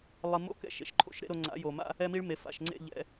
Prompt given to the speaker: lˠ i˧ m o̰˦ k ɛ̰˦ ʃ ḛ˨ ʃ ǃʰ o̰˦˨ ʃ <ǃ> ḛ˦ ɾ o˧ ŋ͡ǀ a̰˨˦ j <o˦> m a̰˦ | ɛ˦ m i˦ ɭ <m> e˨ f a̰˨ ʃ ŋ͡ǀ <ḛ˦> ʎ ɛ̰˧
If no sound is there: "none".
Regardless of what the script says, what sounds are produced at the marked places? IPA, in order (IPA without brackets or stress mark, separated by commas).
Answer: ɾ, o˨, m, ḛ˦˨